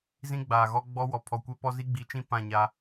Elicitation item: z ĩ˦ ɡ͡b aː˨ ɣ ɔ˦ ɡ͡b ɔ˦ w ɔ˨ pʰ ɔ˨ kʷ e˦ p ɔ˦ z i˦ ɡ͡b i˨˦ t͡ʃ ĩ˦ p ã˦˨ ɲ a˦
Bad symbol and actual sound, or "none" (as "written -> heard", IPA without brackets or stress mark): none